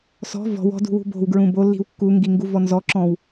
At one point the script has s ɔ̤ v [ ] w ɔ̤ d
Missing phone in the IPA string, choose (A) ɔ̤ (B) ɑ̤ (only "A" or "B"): A